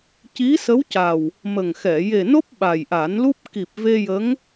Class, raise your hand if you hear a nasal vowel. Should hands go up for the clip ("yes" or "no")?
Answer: no